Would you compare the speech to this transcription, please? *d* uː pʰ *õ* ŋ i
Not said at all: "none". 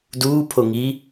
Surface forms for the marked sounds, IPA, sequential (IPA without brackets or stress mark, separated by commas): d, o